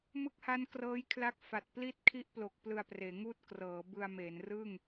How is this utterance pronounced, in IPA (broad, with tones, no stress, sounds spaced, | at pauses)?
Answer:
m ɯ˦˥ k̚ h a˦˥ n k r ɤː˦˥ j kʰ l a˦˥ k̚ f a˨˩ t̚ p l i˥˩ t̚ kʰ i˥˩ ʔ p l o˨˩ k̚ p l ɯ˧ a̯ p r eː˩˦ ŋ uː˥˩ t̚ k r ɤː˩˦ b ɯ˧ a̯ m e˩˦ n r ɯː˥˩ ŋ